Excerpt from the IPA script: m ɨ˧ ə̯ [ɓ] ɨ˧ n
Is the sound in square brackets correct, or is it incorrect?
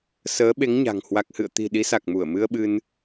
correct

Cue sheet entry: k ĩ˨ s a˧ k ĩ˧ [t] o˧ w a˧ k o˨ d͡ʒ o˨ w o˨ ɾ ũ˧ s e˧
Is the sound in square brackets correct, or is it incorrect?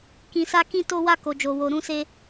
correct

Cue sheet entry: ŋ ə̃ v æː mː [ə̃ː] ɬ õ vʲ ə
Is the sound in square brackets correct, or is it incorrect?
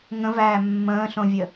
correct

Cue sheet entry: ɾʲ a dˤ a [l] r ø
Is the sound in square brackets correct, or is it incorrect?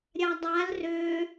correct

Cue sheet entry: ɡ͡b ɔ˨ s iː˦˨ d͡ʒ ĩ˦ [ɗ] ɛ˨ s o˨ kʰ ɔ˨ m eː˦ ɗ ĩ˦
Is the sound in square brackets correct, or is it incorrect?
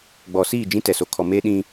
incorrect: t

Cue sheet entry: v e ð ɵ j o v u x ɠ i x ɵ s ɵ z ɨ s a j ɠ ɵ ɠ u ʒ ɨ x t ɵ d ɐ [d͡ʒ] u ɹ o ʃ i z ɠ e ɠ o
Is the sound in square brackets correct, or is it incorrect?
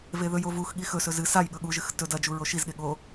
correct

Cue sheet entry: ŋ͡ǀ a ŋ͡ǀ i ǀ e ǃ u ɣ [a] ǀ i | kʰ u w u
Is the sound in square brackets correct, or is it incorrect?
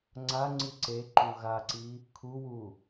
correct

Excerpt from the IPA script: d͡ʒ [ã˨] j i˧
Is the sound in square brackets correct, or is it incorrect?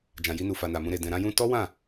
correct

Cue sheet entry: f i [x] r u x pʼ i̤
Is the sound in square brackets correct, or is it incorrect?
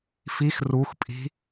correct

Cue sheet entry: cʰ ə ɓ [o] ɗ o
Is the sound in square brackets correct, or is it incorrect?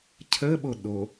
correct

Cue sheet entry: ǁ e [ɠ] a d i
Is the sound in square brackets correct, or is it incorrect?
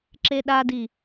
incorrect: ɗ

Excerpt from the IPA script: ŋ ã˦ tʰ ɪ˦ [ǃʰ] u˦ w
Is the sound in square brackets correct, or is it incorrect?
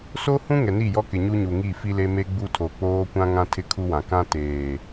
incorrect: kʰ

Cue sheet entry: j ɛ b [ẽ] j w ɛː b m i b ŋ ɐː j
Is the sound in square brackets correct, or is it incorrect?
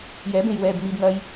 correct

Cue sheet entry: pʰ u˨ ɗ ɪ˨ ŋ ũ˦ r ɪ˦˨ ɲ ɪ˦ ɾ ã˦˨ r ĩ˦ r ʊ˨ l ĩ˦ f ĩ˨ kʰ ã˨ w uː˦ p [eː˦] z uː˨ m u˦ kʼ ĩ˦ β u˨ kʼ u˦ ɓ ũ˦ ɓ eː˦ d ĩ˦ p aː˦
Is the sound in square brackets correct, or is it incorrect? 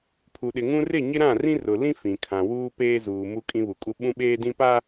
correct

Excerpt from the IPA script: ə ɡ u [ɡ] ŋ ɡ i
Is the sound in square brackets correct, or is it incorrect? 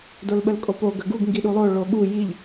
correct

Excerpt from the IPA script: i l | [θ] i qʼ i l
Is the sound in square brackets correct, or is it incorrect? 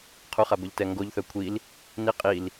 incorrect: n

